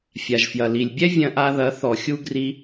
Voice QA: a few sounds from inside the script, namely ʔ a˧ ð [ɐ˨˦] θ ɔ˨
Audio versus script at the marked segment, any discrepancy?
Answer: no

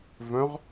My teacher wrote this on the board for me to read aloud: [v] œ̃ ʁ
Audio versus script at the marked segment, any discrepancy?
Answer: no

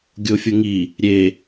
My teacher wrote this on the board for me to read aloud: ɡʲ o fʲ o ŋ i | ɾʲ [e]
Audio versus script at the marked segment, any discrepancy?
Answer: no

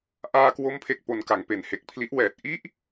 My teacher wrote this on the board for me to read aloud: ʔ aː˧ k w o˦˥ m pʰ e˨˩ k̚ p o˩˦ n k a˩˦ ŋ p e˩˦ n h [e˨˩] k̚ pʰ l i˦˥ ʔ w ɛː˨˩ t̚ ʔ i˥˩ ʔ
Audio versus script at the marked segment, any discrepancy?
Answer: no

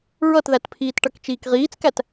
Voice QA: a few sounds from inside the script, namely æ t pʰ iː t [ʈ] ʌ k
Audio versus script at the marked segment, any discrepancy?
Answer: no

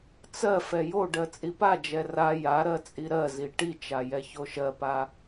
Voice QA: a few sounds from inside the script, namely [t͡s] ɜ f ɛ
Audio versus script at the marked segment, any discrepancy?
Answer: no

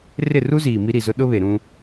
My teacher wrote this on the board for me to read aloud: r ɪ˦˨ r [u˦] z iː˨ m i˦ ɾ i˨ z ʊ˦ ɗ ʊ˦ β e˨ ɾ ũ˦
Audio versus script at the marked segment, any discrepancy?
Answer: no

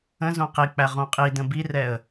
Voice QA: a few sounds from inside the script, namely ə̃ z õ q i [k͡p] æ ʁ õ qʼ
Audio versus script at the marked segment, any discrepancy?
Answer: no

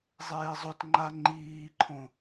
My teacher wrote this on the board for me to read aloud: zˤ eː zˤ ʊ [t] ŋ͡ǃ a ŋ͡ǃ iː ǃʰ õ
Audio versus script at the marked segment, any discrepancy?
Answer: no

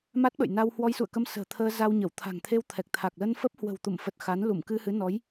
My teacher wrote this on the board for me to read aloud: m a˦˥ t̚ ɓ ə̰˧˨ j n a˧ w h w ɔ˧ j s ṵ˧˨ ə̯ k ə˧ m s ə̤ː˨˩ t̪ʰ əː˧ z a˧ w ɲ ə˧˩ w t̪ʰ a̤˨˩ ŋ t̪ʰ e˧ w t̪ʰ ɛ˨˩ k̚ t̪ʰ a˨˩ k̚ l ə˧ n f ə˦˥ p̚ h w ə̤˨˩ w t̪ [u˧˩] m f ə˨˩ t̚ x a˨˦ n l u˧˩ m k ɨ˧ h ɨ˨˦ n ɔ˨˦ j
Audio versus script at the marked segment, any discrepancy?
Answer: no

